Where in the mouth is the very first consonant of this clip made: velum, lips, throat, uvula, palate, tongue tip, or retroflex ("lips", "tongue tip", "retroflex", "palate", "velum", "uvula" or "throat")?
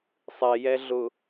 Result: tongue tip